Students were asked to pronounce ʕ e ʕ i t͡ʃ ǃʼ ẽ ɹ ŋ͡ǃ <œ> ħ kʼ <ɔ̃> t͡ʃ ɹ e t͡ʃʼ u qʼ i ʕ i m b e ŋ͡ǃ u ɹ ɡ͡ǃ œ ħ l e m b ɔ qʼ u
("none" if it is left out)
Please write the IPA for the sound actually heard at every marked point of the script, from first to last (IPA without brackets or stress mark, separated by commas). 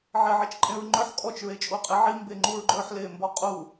œ, ɔ